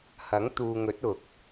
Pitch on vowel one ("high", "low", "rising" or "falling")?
rising